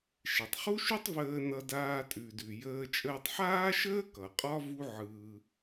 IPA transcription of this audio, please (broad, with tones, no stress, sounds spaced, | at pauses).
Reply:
ʃ e˩ tˤ χ u˥ ʃ ʉ˥ tˤ v əː˧ n ʌ˧ d aː˧ tʼ ʉ˩ d ʉ˩ j əː˧ t͡ʃʼ əː˧ tˤ ħ aː˥ ʃ əː˥ k ʌ˩ qʼ ɒ˥ v u˥ ʕ ɯː˧